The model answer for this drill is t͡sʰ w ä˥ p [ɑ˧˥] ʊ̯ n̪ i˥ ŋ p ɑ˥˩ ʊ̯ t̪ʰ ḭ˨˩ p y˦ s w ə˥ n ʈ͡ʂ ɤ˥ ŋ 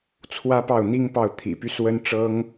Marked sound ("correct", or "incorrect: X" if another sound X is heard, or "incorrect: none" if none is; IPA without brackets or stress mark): incorrect: ɑ˥˩